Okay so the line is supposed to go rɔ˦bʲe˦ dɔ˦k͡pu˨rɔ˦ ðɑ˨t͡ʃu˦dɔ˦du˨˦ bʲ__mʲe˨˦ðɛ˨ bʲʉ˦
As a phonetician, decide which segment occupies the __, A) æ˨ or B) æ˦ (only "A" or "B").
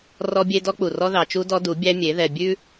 B